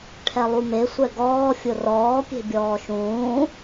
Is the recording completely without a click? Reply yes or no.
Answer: yes